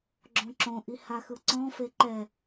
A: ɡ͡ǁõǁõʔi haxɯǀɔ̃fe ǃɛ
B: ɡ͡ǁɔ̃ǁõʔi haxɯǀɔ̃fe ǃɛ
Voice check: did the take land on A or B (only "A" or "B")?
A